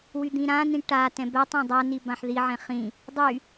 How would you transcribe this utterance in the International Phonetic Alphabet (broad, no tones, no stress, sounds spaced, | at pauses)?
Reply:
w y d̪ ĩ ɾ ã n ĩ ʈ a t ɛ̃ b ɛ tˤ ã dˤ a n i b ã ħ ð i ʕ ɛ̃ χ ĩ | dˤ y